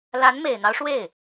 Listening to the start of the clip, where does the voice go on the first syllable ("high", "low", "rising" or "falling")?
rising